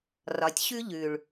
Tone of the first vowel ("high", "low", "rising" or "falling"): low